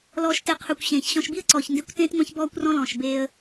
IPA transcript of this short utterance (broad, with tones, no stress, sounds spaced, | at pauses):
l ɔː˨ ʃ t e˨ qʰ ø˨ kʷ ɕ ẽː˨ ç ɕ ɔ̃˨ ʃ b i˦ ə̯ ǀ ɔː˨ ç n d e˦ kʷ t ẽː˦ t ŋʷ æ̃˦ ç b ɔː˦ kʷ r ɔ̃˦ l ɔ̃ː˨ ʃ b eː˦ ə̯